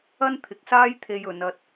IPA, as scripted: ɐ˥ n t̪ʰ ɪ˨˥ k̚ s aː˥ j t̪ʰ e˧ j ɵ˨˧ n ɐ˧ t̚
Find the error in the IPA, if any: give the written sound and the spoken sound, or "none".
none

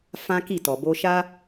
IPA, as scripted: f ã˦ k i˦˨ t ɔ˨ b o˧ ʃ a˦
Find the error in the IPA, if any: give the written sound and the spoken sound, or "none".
none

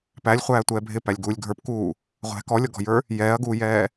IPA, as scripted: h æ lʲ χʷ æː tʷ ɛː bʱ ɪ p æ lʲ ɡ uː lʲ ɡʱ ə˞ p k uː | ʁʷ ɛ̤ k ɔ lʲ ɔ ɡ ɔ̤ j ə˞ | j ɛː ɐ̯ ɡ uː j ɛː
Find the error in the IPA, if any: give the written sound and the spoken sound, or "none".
h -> p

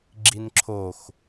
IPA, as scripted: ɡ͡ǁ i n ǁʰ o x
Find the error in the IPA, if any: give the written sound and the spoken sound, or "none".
none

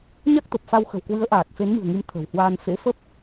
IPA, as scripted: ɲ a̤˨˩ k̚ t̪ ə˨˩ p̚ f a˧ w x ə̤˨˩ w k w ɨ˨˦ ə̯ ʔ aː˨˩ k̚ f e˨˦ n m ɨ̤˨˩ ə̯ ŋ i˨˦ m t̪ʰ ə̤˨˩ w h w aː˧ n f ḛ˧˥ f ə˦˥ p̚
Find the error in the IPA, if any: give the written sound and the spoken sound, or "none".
a̤˨˩ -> a˦˥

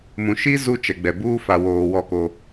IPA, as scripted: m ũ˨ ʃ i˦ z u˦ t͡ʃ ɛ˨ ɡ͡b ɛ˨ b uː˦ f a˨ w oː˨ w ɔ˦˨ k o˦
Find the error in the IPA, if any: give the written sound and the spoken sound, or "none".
none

